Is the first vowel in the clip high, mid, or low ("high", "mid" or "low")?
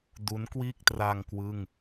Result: high